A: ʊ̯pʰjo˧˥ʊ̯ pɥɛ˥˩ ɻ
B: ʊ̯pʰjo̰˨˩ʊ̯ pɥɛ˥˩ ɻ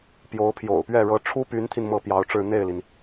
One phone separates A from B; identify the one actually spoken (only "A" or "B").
B